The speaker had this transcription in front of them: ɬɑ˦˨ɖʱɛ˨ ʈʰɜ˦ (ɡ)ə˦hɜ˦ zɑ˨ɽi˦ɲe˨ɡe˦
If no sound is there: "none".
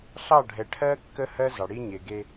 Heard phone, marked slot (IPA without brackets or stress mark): kː